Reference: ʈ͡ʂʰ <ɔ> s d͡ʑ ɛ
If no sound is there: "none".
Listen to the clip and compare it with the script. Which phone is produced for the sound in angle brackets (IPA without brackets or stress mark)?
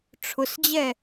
ʊ